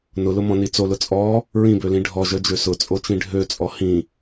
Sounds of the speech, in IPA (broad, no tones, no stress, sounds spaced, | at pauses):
n ʊ l ʊ m ɔ̃ n i t͡s o l ʊ t͡sʼ ɔ | ɹ ĩ b ø l ĩ ɖʱ ɔ ʒ œ d͡ʒ ø s ʊ t͡sʼ o t͡ʃ ĩ ɖʱ ø t͡sʼ ɔ h ĩ